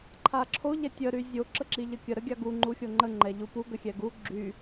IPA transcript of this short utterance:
ǃʰ a ǁʰ o ʎ ɛ tʲ ə ɾ y zʲ o ǁ ə ǁ i ʎ ə kʲ ə ɾ ə ɡʲ a ɡ u ŋ͡ǃ u xʲ o ŋ͡ǃ ə ŋ͡ǃ ɛ ʎ u p u ɡ ə xʲ ɛ ɡ u ɡ͡ǁ y

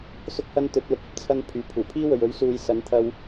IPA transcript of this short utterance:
s ʊ˥ k̚ h ɐ˥ n t̪ ɵ˨˥ t̚ l ʊ˨ k̚ ɐ˧ p̚ t͡sʰ ɐ˧ n pʰ yː˨ pʰ uː˨˩ pʰ iː˥ w ɵ˨ ɥ ɵ˨˥ ɥ s uː˨˧ j s ɐ˨˥ n t̪ʰ ɐ˧ w

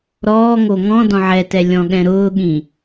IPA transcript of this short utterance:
ɾ ɔː ŋ o ŋ ɔ̃ d ɔ̃ ʕ ɛ t ɛ lʲ ɔ̃ ɠ ɛ̃ ɾ ʊː ɠ ĩ

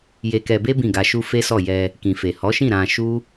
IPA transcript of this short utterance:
j e˧ k ɛ˧ b e˦ b ĩ˦˨ ɡ a˧ ʃ u˦ f e˦ s ɔ˦˨ j ɛ˧ | k ĩ˨ f e˨ h ɔ˨˦ ʃ ĩ˦˨ ɾ ã˧ ʃ u˦

